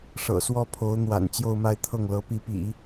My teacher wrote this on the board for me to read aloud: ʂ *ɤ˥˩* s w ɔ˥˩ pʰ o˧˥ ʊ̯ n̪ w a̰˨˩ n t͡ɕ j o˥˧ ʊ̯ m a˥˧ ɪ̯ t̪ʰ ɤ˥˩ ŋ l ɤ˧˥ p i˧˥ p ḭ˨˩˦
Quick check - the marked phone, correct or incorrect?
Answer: incorrect